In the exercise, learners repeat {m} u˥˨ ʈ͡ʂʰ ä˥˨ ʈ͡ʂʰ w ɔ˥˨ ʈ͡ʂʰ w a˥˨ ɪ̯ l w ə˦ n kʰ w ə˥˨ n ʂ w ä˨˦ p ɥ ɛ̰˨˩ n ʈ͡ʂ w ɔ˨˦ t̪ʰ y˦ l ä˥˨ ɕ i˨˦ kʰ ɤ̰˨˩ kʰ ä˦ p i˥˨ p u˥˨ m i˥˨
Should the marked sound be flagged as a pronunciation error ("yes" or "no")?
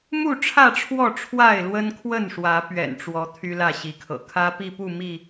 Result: no